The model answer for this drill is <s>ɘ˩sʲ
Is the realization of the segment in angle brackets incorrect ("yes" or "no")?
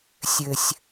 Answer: yes